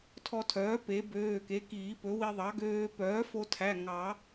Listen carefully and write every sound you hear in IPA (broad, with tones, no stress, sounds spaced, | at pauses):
tʰ ɔ˧ tʰ œː˩˥ p e˩˥ b øː˩˧˩ k e˩˥ k iː˨˩˦ p ɵ˩˥ w i˧ ðˤ ɑ˩˥ ɡ øː˧ p œː˩˥ f o˧ tʰ æ˩˧˩ ŋ ɑ˨˩˦